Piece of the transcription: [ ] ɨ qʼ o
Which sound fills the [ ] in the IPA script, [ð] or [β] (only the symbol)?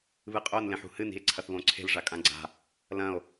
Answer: β